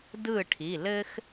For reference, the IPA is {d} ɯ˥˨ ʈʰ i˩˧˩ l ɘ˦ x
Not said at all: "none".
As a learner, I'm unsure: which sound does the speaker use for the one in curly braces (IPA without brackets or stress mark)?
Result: d